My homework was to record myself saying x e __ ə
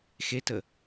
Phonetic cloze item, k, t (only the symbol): t